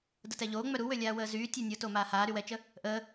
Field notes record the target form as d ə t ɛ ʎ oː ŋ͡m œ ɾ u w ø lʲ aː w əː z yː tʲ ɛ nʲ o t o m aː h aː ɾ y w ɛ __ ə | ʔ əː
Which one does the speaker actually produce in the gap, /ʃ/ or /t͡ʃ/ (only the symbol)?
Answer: t͡ʃ